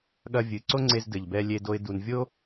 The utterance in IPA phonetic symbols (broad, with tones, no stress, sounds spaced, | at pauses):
ɠ ɐ˧ vʲ ɨ˩ ǀ o˥ ŋ͡ǀ e˧ z d ɘ˩ ʎ b ɛ˧ lʲ e˧ d o˧ ɪ̯ d u˩ n vʲ o˥